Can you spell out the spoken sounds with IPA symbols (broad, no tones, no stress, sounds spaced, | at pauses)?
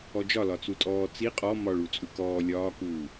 ɔ d͡ʒ ɒ l ɒ t͡s u tʼ ɔː t͡s i qʼ ɔ m ɒ ɭ u t͡sʼ u k ɔː lʲ ɒː k uː